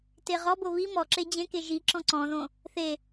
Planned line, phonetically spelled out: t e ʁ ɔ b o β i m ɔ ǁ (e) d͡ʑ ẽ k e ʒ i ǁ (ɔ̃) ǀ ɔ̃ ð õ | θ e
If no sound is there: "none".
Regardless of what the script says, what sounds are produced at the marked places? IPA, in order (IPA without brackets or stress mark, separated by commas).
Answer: e, ɔ̃